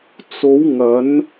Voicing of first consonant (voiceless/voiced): voiceless